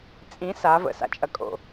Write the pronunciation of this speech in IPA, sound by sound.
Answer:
t͡sʼ ĩ s a v ə̰ s a̰ t͡ʃʼ ɐ kʼ o̰

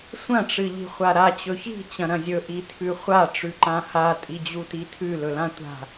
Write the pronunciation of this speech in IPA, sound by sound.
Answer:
sʷ ɐ̃ ʈ͡ʂ ɨ ʎ i̤ χʷ a ɾ a t͡ɕ ɵ ç i̤ t͡ɕ ɐ̃ ɾ ɐ̃ zʲ ɵ ʔ i tʰ ʉ χʷ a ʈ͡ʂ ʉ ǃ ã h a tʼ i d͡ʑ u t i tʰ ʉ l ɵ l ã tʷ a̤

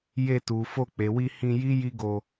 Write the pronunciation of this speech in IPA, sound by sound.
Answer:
j e˧ t u˨ f o˧ k͡p e˨ w i˧ h ĩ˧ j i˦ j i˦ ɡ o˧

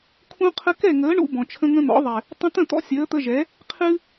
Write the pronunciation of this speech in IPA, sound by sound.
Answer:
kʰ ũ˦ qʰ ə˦ k ɛ˦˨ ŋ əː˨˦ ɳ ṵ˧ b ɔ̃˨ t͡ʃʰ ə̃˦ ŋ ə̃˦ n̪ ɔ̰˨˦ ðˤ ɛ˨ | tˤ ə̃˦ t̪ ə̃˦˨ t̪ ɔ̰˧ sʲ əː˨˦ t̪ ə˧ ʒ ɛ˨˦ | qʰ ɨ˦

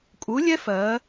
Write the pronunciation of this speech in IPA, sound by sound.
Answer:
kʼ u˨˥ lʲ ɛ˦˥ f ɜ˩˧

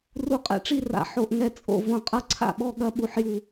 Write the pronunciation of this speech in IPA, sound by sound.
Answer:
r u˧˩ qʼ ɛ̰˧˩ ʈ͡ʂ i˥˩ r a̰˧˩ ħ o˧˩ ʔ ŋ ɛ˥˩ t͡sʼ o̰˥˩ v õ˧˩ qʼ ɐ˥˩ ǀʰ a̰˥˩ ɓ ɔ˥˩ ɠ ɐ˥˩ ɓ u˧˩ ħ j u˧˩

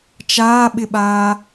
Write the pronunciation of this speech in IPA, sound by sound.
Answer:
t͡ʃ aː ɓ ɪ ɓ aː

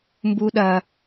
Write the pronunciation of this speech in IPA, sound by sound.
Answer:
m b u˦ ɗ ɐ˦

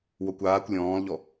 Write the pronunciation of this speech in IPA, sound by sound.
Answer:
w o kʷ aː kʷ lʲ ɔ̃ː l ʎ ɔ

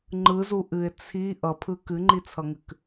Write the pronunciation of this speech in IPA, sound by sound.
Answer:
ŋ͡ǃ ɯ z u ʔ ɨ ɪ̯ t͡sʰ i ʔ ʌ pʰ ɯ k ɨ ŋ͡ǃ i t͡sʰ ʌ ŋ ɨ k

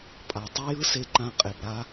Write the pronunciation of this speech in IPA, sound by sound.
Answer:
pʼ a˩ tˤ ɛ˥ j ɯ˥ s e˧ ǃ ã˧ qʼ e˩ b ɾ a˥

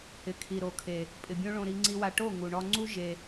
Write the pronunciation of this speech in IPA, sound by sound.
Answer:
h ɪ˨ kʰ i˨ ɾ o˨ kʰ e˨ | pʼ ɪ˨ bʲ õ˦ ɭ õ˧ ɾ i˧ ŋ͡ǀ i˧ w a˧ ʈ o˦˨ ŋ u˨ ɳ ɔ˧ ŋ͡ǀ u˦ ʒ e˧

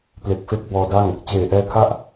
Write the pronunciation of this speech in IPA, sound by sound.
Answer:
p l e˨˩ k̚ f e˦˥ k̚ b ɔː˧ d a˥˩ ŋ | t͡ɕ eː˨˩ ʔ ɛː˦˥ kʰ a˥˩ ʔ

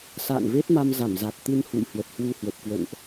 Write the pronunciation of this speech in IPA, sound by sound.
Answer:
s a̰ː˧˨ n v e˦˥ t̚ m a˧ m z a˧˩ m z a˨˩ t̚ t̪ ɨ˧ n h ṵ˧˨ j h w ə˨˩ t̚ h w u˧ h w ə˨˩ p̚ k w ə̰˧˨ n ʔ

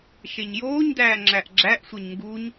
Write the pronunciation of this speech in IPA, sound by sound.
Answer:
ʃ e ɲ j oː ɲ d æː ŋ͡ǁ æ ʔ ɡ͡ǁ æ ʔ sʷ e ɲ ŋ ɡ u ɲ

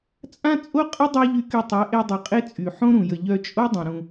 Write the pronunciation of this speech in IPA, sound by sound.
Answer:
t͡sʼ ã˦ t͡sʼ o˦ qʼ ə˦ dˤ a˦ ʎ y˧ k y˧ tˤ ɛ˨˦ ʔ e˧ dˤ y˨ qʼ e˦ t͡sʼ y˨ ħ õ˦ ɾ ũ˨ j ə˨ ʎ œ˧ t͡ʃʼ o˦ dˤ ũ˨ ɾ ũ˧

